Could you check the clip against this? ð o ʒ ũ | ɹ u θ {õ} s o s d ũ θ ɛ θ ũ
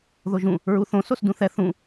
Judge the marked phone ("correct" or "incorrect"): correct